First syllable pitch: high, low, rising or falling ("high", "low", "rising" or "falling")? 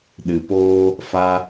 low